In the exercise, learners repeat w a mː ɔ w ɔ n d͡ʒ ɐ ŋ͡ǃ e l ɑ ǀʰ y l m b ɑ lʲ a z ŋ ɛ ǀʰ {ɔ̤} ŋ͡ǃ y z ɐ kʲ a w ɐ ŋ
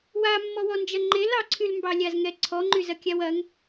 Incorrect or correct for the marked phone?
incorrect: ɔ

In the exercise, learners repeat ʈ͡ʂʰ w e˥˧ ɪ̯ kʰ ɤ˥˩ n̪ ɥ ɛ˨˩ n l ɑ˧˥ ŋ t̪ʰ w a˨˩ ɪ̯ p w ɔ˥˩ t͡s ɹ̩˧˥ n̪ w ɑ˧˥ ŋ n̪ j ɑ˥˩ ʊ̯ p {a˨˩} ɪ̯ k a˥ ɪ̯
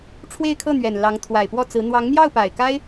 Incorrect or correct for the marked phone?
correct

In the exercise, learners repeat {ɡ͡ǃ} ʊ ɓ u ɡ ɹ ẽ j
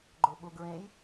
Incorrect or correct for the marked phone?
correct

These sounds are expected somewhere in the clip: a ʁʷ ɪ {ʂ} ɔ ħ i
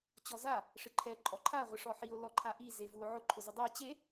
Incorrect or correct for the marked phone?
correct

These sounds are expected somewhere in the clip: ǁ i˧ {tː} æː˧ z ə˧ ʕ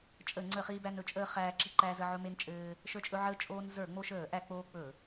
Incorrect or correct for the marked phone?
incorrect: ǃ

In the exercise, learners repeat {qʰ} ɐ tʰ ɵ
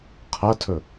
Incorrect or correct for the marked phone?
correct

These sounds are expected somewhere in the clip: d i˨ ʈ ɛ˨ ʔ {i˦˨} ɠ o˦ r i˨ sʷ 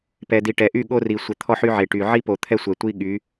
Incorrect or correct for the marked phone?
incorrect: y˦˨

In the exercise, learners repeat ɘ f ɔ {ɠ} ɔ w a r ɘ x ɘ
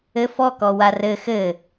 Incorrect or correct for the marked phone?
incorrect: k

